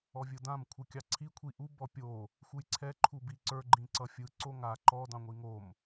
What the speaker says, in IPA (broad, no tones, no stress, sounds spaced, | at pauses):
ɔ vʲ ɯ d ã m kʷʰ ɯ kʲ ɑ ǀʰ i kʷʰ i ʔ u b ɔ pʲ o | xʷ ɯ j ǀʰ ɛ ǃʰ u b i ǀ ə˞ ɡ͡ǃ ĩ ǀ ʌ fʲ ɯ ǀ o ŋ a ǃ ɔ d ɑ̃ ŋʷ i ŋ o m